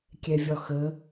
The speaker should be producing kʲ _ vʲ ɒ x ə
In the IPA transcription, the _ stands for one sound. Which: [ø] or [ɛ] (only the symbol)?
ɛ